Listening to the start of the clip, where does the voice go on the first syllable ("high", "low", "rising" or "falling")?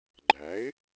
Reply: rising